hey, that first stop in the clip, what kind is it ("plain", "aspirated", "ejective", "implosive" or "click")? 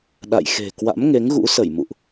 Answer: implosive